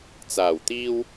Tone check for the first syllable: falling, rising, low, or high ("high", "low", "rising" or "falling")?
low